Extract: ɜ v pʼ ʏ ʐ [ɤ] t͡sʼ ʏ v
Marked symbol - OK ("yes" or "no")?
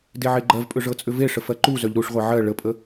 yes